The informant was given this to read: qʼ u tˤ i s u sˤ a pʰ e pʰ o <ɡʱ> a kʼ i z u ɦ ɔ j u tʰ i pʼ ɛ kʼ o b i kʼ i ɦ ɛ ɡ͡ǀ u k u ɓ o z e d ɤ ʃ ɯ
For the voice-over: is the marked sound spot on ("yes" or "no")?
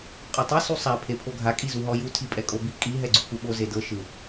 yes